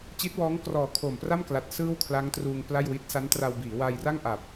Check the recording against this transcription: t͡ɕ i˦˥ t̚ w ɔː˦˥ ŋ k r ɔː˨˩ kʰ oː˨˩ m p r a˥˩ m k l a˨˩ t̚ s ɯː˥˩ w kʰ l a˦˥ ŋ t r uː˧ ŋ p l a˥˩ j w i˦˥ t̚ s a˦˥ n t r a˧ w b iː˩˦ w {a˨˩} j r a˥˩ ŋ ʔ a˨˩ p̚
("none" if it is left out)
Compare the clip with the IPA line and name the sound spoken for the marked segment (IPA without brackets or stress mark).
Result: a˧